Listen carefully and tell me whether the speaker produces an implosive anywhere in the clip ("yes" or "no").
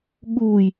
yes